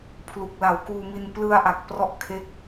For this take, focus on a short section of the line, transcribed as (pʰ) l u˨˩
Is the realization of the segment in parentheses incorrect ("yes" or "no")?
no